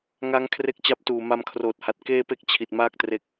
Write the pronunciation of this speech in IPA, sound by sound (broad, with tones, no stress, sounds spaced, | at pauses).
ŋ a˦˥ ŋ kʰ r e˥˩ k̚ t͡ɕ a˥˩ p̚ t uː˨˩ m a˧ m kʰ r oː˨˩ t̚ h a˨˩ t̚ k eː˥˩ p e˥˩ k̚ t͡ɕʰ i˨˩ t̚ m aː˥˩ k̚ t r e˦˥ k̚